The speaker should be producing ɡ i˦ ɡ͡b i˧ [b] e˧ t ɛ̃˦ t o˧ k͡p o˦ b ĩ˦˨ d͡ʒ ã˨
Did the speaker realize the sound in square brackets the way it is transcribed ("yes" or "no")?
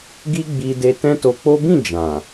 no